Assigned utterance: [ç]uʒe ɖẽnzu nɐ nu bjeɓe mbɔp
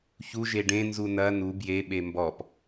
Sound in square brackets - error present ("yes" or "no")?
no